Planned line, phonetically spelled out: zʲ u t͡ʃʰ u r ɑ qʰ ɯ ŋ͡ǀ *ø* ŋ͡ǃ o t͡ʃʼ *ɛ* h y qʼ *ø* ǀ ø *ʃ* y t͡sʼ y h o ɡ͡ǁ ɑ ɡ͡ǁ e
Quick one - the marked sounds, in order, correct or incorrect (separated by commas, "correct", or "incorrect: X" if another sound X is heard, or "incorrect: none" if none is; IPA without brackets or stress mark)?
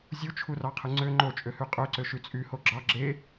correct, incorrect: ø, correct, correct